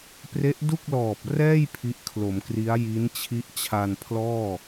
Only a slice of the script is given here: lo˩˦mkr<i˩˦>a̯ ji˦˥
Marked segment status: incorrect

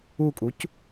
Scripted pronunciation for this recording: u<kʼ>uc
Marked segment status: correct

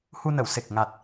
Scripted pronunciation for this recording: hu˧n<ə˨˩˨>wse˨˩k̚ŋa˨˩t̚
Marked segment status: correct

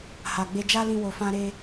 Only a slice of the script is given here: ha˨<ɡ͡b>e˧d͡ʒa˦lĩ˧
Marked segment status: correct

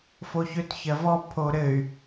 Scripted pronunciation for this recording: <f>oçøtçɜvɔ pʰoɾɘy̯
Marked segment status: correct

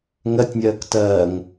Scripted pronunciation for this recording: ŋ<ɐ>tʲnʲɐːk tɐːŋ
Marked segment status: correct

